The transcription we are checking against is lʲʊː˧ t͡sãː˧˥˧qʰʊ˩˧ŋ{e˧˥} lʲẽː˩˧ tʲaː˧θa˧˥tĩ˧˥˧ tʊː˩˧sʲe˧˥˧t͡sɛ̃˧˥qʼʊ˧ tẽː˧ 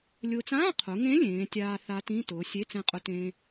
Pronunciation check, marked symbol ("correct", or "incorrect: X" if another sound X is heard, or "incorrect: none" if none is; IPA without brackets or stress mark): incorrect: ẽ˧˥